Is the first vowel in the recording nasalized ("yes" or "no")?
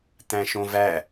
yes